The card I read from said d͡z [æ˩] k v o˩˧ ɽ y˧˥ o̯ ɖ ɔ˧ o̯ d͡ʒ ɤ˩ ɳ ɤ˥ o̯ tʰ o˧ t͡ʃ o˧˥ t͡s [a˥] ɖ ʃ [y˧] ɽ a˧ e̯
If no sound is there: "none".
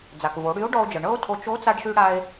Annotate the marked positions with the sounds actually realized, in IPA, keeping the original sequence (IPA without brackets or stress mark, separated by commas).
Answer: a˩, a˧, y˧